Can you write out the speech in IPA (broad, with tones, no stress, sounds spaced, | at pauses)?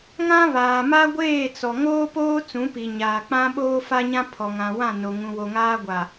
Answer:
ŋ ã˦ β aː˨ m a˦ ɡʷ eː˦˨ t͡s ɔ˨ ŋ oː˦ p oː˦ t͡s ũ˨˦ p i˨ ɲ aː˨ k͡p ã˦ ɓ oː˦ f a˦ ɲ ã˦ pʰ ɔ˨ ŋ ã˨ w ã˦˨ n o˨ ŋ ũ˨ w o˨ ŋ aː˦ ɡʷ a˨